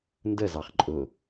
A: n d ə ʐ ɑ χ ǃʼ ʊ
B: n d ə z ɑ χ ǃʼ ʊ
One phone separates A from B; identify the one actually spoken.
B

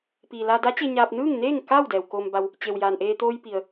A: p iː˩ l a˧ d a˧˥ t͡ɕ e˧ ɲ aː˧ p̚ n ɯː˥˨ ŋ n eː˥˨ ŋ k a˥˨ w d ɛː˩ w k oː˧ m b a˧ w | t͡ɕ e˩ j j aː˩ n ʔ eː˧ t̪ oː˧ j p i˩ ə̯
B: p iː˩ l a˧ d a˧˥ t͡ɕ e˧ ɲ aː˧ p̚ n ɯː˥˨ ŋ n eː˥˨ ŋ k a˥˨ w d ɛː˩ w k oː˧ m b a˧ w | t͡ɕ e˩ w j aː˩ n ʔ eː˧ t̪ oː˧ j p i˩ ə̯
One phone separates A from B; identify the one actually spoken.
B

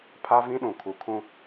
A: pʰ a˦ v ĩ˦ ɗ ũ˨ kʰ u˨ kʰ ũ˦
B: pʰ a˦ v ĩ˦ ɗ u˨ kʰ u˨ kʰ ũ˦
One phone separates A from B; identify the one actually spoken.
A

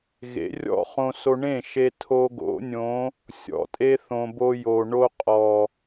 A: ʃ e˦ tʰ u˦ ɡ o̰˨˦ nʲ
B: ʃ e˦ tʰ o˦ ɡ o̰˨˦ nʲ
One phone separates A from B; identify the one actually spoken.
B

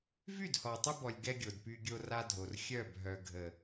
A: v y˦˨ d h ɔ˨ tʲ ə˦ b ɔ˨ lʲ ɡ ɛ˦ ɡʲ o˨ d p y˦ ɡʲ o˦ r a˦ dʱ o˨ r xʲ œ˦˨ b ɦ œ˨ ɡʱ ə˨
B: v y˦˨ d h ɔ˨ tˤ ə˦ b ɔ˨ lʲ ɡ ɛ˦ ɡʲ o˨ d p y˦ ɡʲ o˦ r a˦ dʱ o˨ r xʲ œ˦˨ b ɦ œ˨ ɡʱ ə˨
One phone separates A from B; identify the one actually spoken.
B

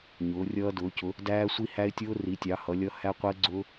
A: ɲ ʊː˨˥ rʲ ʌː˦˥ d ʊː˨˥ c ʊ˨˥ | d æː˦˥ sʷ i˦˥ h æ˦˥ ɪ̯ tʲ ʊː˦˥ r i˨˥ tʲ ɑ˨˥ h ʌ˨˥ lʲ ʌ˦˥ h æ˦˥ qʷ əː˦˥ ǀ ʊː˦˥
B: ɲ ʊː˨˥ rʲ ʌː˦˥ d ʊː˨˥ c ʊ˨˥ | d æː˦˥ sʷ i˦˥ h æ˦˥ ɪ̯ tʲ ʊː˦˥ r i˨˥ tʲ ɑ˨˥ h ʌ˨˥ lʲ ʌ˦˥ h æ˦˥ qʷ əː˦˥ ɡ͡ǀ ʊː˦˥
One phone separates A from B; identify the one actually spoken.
B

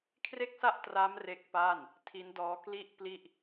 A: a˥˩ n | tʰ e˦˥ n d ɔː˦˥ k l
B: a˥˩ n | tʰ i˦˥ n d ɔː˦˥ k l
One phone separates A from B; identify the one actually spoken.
B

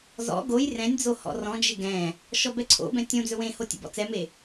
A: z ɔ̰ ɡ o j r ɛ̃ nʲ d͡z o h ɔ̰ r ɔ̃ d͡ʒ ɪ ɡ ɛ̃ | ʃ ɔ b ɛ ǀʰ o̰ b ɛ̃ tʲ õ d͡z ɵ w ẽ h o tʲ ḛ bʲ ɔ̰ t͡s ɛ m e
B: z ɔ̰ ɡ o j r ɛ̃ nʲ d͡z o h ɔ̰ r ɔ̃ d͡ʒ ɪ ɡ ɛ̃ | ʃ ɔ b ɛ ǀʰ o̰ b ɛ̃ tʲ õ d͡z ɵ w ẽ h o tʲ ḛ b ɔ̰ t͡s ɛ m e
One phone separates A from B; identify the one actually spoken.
B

